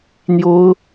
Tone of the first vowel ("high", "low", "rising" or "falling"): high